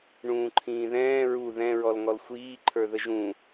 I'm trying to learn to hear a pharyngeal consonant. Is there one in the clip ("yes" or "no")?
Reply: no